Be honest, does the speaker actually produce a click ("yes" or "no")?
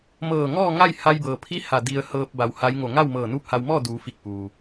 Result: no